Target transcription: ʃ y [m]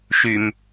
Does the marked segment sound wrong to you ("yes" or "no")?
no